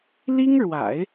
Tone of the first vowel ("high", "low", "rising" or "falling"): high